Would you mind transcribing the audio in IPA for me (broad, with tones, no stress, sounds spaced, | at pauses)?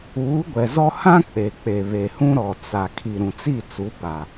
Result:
uː˨˦ ɡʷ ɛ˨ z ɔ˦ h ã˦ k͡p e˨ k͡p e˨ β e˨ h ũ˦ ɾ ɔ˨ t͡s a˨ kʰ i˨ ɾ ũ˨ t͡s i˦˨ t͡s u˨˦ p a˨